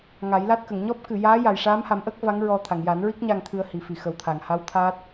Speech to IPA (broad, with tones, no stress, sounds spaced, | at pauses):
ŋ a˨˩˦ j l a˦˥ t̚ k ə˨˩˨ ŋ ɲ ɔ˦˥ p̚ k ɨ˨˩˨ j aː˧˥ j a˨˩ j ʂ aː˧˥ m h a˨˩˦ m ʔ ə˦˥ k̚ v a˧˥ ŋ ɹ ɔ˧ t̪ʰ a˨˩˨ ŋ j a˨˩˦ n ɹ i˦˥ k̚ ɲ a˧ ŋ t̪ʰ ɨ˧ ə̯ h i˨˩ f i˨˩˨ x ə˨˩ w t̪ʰ a˨˩˨ ŋ h a˧˥ w t̪ʰ aː˦˥ t̚